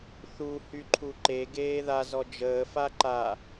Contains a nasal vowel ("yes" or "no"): no